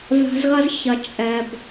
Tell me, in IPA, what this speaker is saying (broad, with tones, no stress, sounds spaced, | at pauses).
v a̤˧ z ɣ ɐ˦ z ç ɐ˨ t͡ʃʼ ɛ˨ b